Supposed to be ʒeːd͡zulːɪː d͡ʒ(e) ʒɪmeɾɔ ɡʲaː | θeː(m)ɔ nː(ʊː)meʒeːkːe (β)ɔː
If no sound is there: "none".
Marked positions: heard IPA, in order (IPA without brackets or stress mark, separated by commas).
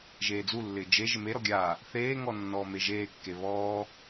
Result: e, ŋ, ɔː, β